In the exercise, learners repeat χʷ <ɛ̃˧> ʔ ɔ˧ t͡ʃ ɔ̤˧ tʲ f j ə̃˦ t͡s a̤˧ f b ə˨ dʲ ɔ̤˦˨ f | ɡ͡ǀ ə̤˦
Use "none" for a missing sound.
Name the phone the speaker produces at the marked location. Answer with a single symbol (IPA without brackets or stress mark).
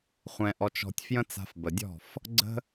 ɛ̃˧